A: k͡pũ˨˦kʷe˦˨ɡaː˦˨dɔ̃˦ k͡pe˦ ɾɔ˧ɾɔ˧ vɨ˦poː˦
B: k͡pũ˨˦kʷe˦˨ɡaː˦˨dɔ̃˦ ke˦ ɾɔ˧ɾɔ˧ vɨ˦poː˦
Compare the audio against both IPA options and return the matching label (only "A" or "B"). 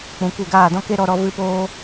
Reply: B